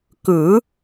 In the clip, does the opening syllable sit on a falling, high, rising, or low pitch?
rising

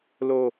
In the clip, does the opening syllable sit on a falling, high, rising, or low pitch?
low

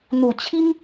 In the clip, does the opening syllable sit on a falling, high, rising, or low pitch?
low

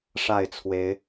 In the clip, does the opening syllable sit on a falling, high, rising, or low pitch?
falling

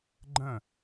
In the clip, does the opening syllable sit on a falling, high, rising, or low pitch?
falling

